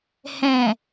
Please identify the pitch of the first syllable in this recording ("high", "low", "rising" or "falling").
low